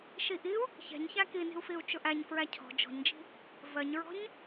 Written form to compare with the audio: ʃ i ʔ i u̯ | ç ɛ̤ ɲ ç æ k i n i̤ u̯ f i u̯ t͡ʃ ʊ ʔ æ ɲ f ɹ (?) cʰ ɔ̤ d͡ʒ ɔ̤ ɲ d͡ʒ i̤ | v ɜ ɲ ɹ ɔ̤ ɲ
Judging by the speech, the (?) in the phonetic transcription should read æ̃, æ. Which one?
æ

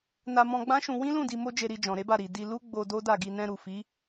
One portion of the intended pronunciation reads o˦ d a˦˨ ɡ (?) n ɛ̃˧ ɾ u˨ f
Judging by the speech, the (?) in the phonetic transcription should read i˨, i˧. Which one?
i˧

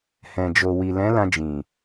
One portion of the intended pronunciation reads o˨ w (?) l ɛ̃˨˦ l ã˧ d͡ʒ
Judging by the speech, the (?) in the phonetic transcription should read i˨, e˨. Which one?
i˨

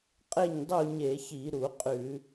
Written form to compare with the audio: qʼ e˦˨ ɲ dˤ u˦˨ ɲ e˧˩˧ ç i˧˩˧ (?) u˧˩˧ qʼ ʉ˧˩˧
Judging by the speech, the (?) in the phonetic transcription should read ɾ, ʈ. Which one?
ɾ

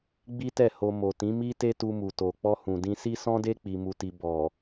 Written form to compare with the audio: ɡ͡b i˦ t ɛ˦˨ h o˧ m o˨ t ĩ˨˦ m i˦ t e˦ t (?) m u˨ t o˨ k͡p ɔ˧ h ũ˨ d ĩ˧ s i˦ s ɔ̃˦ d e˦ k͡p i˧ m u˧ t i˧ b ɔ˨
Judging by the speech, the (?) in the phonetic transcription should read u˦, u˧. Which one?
u˧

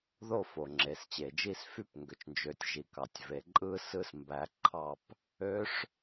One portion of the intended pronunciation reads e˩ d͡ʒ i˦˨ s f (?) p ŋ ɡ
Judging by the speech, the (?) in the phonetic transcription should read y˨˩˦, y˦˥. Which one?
y˦˥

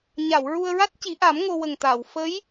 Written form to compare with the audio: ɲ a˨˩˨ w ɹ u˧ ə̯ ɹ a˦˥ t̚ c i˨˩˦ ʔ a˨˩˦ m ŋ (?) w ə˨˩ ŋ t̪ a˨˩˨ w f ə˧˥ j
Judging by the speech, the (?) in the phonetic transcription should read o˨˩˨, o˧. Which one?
o˧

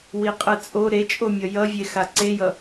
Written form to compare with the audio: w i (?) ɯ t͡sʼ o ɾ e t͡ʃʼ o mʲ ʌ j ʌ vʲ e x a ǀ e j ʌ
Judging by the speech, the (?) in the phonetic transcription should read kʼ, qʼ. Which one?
qʼ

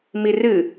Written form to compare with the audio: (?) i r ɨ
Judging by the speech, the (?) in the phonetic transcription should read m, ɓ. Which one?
m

